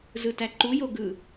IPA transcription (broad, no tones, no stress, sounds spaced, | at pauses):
z ɯ t æ ǃ u j o ɡ ɯ